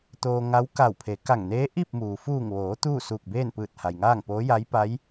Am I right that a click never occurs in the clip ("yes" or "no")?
yes